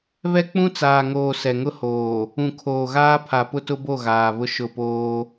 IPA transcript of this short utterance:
βɛ˦k͡pũ˦t͡saː˨ŋoː˨ sɛ˨ŋʊ˦ hoː˨ | ũ˨kʰoː˨ɣaː˦ pʰa˨pʊ˦tʊ˦bo˦˨ ɣaː˨βʊ˦ʃʊ˦˨poː˦

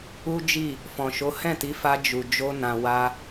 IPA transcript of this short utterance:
u˦d͡ʒi˦˨ | fɔ̃˨ʃo˨˦ hɛ̃˦˨ti˨˦ fa˧ d͡ʒu˨ d͡ʒo˧nã˨wa˧

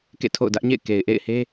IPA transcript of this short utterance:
kḛ˦˨tʰo̰˦˨ʊ̯dä˦ʔɲḛ˦˨ɪ̯ ke˨ɪ̯ʔḛ˦˨ɪ̯he˦

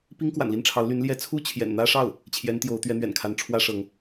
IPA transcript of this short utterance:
pi˥ŋkwa̰˨˩nli˥˩nʈ͡ʂʰɑ˧˥ʊ̯ ly˧˥nljɛ˧˥ t͡sʰu˥t͡ɕʰjɛ̰˨˩nn̪ä˥ʂɑ˥˩ʊ̯ | t͡ɕʰjɛ˧˥n t̪jo˧˥ʊ̯t̪ɥɛ˧˥n̪ɥɛ̰˨˩nkʰa˧˥n ʈ͡ʂʰwä˥ʂɤ˧˥ŋ

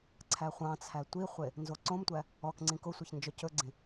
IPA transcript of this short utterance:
ǀʰæχʷɑ̃t͡sʰæ tʷiχʷe | nzoǀõmtʷæ | ɔk ŋ͡ǀĩkosʷiç nd͡ʒɔcɵɡ͡ǀĩ

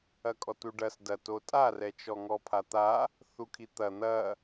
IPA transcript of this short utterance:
ɐkʼɔtuɖɐs dɐto tʼarɛt͡ʃɔŋɔ pʰat̪a | θukʰit̪ɐ n̪ɐ

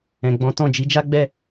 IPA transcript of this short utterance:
ɛ̃˨ɡ͡bɔ̃˨˦tɔ̃˦˨ d͡ʒi˧d͡ʒa˦ɡ͡bɛ˦˨

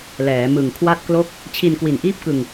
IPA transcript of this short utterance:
lɛː˩˦mɯ˨˩ŋ kʰwa˥˩t̚klo˥˩k̚ | t͡ɕʰi˧nkwi˨˩nʔiː˥˩p̚kɯ˧ŋ

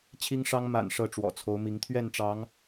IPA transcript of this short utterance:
t͡ɕʰi˦ŋʂɑ˦ŋ ma̰˨˩n ʂɤ˥˨ʈ͡ʂwɔ̰˨˩t͡sʰo˨˦ʊ̯mi˨˦ŋ t̪ʰɥɛ˥˨nʈ͡ʂɑ˨˦ŋ

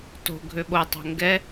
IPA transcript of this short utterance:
to̤ ɡʱøɓotˤo̤ ŋɡɛ

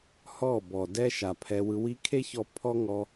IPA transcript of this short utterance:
hɔ˦˨bɔ˨dɛ˦ ʃa˨pʰɛ˧wɯ˧ wi˧ kʰe˦çɔ˧ pʰɔ˦ŋɔ˧

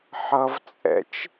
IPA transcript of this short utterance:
ħʌvt͡sʼɛ̰t͡ʃ

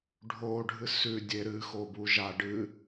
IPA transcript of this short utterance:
ɖʱo ɖʱɨsʉ dʲeɾɨ xobuʒa ɖɨ

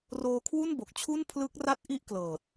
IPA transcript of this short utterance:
roː˧kʰwu˥˩nbo˨˩k̚t͡ɕʰu˥˩n pʰlɯ˦˥k̚ra˥˩t̚ ʔi˥˩ʔklɤː˨˩t̚

